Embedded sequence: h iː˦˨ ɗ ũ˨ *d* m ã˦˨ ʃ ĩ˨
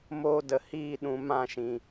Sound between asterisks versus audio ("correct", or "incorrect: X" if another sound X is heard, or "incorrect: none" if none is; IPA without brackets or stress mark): incorrect: none